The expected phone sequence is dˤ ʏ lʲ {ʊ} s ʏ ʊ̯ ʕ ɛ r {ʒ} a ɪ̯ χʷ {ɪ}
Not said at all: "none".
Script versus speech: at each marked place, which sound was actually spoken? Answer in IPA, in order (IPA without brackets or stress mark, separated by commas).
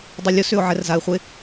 ʊ, z, ɪ